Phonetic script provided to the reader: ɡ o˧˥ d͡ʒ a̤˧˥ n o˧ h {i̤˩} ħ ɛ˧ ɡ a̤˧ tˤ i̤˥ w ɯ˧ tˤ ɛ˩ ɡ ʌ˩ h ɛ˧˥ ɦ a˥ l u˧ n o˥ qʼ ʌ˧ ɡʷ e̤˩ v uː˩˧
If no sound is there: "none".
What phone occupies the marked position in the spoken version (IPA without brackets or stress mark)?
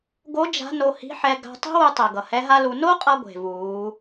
i̤˧˥